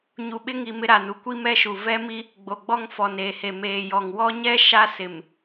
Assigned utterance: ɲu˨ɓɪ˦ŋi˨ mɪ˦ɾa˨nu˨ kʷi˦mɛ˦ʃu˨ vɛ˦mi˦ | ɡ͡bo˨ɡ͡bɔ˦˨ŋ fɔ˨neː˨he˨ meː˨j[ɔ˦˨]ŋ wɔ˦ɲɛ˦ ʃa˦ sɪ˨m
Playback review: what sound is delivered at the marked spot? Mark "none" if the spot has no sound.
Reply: ɔ˨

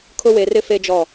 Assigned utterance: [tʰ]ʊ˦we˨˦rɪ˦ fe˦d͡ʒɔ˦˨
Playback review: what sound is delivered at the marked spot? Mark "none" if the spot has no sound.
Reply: kʰ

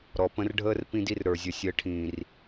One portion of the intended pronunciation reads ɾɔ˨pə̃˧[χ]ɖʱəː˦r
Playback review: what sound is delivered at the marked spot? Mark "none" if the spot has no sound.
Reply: r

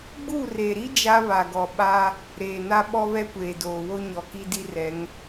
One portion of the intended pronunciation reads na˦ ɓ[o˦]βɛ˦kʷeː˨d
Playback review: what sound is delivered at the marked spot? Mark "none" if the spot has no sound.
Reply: ɔ˦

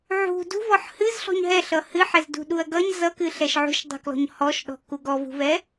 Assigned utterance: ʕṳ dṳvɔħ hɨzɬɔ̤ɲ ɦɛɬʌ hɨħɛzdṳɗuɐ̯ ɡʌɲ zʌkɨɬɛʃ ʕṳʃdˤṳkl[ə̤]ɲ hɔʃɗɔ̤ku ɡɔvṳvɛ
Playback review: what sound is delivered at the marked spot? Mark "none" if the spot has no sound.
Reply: ɔ̤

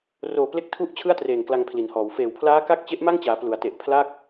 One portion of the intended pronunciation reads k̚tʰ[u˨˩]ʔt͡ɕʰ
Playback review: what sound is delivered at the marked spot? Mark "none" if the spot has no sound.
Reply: u˥˩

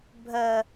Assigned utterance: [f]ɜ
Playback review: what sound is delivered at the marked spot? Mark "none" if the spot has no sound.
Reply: bʱ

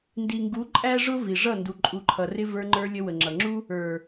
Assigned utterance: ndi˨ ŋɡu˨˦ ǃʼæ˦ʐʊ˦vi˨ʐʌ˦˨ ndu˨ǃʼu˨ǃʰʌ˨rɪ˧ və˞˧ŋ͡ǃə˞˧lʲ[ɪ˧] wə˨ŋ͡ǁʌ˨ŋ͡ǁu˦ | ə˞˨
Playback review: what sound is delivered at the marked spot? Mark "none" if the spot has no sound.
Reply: ə˧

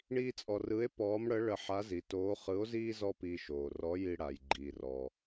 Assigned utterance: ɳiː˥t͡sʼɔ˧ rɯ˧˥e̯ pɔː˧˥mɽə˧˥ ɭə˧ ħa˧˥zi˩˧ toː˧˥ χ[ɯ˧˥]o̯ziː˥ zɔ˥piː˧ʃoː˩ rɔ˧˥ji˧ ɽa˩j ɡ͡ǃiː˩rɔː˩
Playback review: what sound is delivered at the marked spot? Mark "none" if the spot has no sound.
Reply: ɯ˧˥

